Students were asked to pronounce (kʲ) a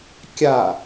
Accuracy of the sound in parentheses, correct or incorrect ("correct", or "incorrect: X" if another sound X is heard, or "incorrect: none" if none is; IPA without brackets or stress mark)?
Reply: correct